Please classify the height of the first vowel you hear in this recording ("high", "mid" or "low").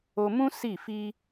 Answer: mid